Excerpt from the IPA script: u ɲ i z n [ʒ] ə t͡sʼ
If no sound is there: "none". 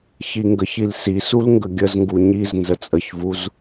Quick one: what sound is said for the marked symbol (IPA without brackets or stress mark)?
z